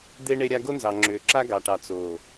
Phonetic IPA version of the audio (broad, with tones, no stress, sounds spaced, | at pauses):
d̪ e˦ ɳ e˦ ɾʲ a˦ ɡ o˦ n z ɑ˨ ŋ͡ǁ ʏː˨ ǁ a˦ ɡ ɑ˨ ʈ ɑ˨ t͡s oː˨